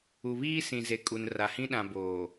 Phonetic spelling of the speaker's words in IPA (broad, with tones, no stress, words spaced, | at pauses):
u˨βiː˦sĩ˨ze˨ kʼu˨nra˨hĩ˦ ɗã˨boː˨